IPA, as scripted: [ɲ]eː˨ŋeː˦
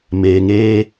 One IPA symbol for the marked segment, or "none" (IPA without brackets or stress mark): m